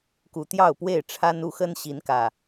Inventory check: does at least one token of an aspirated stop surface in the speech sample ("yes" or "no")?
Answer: yes